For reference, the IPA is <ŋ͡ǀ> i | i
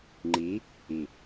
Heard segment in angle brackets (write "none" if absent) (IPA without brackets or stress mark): ŋ͡ǃ